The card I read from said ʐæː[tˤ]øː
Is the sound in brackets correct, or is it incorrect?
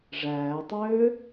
correct